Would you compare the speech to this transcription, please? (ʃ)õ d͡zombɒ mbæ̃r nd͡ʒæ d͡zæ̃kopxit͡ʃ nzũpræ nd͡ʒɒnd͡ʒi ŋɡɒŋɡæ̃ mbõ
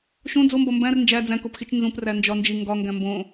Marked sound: correct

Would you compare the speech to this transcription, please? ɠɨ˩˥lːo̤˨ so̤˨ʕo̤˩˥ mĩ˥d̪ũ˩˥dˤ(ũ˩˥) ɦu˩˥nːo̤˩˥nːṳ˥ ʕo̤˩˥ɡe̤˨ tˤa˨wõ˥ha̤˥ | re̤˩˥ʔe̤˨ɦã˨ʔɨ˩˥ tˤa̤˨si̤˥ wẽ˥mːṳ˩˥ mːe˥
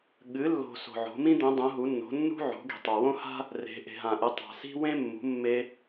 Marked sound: correct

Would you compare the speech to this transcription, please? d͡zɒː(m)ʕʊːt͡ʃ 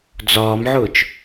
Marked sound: correct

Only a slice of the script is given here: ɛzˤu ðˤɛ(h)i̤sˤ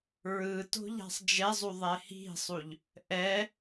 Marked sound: correct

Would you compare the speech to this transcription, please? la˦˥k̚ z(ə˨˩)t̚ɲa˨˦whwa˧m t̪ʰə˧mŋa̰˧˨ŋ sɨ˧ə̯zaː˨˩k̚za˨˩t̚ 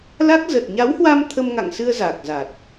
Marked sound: correct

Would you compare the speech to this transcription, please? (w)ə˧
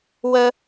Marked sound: correct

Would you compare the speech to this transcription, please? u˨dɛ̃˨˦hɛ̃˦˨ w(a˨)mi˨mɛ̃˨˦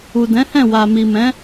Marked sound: correct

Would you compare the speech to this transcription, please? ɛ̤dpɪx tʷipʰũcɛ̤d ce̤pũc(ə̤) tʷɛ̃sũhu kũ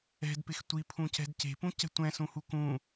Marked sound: incorrect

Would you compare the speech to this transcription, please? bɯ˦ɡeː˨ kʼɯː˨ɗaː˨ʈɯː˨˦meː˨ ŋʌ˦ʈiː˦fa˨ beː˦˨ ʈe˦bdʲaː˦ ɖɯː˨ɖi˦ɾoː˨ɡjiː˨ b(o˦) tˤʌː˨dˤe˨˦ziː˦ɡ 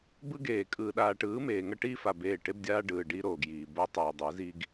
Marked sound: correct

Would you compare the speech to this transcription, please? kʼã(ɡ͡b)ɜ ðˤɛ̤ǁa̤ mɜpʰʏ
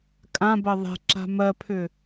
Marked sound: incorrect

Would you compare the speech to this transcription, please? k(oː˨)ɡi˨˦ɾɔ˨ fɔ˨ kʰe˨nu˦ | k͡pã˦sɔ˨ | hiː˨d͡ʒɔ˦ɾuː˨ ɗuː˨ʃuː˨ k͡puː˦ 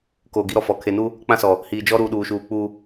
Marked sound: correct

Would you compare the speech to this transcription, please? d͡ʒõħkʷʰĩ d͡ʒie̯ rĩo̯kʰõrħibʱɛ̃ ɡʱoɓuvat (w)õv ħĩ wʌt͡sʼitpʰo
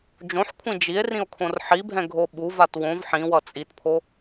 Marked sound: correct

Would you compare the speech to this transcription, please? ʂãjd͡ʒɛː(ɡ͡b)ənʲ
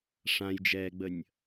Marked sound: correct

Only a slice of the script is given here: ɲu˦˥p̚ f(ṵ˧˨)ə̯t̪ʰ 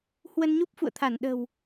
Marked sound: correct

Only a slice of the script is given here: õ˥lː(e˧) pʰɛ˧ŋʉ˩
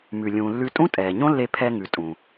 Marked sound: correct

